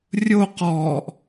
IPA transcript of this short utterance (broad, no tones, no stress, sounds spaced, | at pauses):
rʲ o q ɔː ʔ